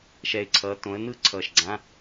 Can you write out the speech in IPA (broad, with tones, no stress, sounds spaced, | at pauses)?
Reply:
ʃ ɛ˧˩ ɪ̯ ǀʰ ʌː˨˥ t õ˨˥ ə̯ n ɯ˥˧ ǀʰ ʌː˧˩ ʃ ɡ͡ǀ ã˧˥˧